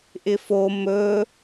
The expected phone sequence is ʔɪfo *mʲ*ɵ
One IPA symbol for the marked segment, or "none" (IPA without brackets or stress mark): m